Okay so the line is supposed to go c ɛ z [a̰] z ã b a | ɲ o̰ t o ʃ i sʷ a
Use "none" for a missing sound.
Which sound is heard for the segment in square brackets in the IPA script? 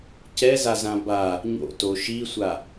a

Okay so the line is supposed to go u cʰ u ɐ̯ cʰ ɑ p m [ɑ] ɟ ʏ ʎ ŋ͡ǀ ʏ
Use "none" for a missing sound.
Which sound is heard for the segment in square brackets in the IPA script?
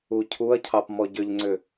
ɔ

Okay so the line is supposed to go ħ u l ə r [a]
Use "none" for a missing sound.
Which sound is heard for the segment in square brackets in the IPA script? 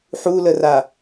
a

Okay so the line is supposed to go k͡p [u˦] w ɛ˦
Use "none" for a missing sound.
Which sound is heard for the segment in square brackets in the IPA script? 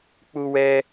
u˦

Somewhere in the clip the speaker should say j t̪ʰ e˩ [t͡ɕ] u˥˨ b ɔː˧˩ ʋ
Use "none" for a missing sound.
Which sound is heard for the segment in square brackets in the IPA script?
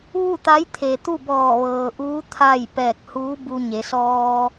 t̪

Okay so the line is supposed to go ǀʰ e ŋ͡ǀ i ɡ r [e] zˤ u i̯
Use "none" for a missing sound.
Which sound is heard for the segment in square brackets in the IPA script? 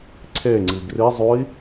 i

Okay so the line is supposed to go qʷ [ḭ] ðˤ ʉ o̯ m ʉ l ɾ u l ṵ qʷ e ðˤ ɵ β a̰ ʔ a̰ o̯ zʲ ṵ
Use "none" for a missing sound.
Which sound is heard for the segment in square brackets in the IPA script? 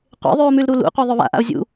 ḛ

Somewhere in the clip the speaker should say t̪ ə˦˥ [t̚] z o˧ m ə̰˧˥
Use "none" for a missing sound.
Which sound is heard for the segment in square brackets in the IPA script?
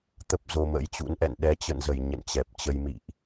p̚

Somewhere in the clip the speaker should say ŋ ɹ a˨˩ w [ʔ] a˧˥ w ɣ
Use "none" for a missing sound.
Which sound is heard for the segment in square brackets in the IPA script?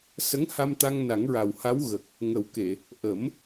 h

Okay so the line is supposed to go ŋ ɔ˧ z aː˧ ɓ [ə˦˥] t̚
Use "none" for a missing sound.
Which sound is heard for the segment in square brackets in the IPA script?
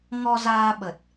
ə˨˩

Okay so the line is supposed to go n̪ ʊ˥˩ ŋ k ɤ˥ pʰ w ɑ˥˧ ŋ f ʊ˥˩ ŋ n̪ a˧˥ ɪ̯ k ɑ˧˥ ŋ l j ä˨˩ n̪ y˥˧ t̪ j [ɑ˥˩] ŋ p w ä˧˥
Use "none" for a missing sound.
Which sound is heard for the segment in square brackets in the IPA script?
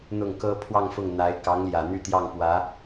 ɑ˥˩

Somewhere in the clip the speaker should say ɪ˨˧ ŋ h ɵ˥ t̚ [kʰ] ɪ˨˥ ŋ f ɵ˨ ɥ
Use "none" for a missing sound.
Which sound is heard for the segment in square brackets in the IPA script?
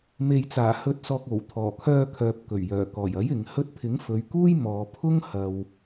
pʰ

